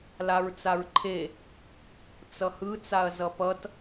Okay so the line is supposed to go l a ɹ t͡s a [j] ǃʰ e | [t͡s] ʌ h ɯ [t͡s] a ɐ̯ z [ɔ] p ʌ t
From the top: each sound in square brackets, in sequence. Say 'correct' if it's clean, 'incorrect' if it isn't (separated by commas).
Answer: incorrect, correct, correct, incorrect